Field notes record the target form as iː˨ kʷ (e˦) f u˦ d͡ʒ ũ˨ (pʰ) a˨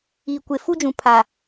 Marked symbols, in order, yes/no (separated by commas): no, yes